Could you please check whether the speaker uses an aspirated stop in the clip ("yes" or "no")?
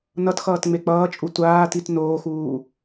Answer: no